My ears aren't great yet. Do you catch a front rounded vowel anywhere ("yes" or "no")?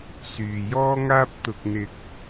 yes